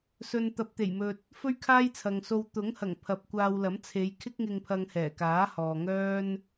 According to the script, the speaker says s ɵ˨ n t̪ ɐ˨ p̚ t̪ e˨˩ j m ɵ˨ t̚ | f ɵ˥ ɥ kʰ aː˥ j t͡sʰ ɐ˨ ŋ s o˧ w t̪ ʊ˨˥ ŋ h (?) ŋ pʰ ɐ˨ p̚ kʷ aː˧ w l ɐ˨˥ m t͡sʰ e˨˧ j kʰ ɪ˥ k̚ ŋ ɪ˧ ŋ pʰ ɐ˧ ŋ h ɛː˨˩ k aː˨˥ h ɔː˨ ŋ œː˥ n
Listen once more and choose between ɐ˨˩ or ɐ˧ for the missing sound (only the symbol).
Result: ɐ˨˩